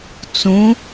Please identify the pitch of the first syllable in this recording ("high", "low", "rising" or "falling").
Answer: rising